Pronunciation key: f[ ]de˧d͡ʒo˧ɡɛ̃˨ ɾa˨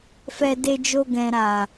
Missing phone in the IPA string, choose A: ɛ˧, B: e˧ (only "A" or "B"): A